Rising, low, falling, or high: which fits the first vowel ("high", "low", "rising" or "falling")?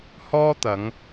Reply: high